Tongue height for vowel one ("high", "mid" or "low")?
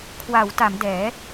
low